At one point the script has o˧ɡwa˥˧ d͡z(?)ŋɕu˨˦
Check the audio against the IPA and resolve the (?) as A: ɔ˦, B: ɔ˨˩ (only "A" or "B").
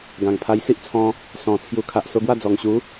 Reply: B